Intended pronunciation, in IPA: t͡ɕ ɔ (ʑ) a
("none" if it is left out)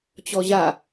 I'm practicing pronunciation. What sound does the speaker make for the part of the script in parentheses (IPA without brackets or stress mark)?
ʑ